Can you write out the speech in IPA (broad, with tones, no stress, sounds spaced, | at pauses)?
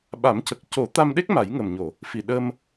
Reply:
ɓ a˨˩˦ m c ə˨˩ k̚ c o˨˩˦ t̪ a˧ m ɗ e˦˥ k̚ m a˨˩˦ j ŋ ə˨˩ m ɲ o˨˩˨ | f i˨˩ ɗ ə˧ m